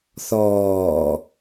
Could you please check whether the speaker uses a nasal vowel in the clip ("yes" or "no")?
no